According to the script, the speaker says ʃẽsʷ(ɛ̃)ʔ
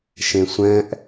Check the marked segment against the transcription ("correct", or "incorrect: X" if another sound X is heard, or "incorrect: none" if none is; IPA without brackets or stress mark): correct